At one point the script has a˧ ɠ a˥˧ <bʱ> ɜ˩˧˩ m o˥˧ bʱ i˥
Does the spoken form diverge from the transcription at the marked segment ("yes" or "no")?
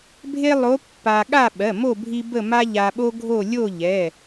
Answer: yes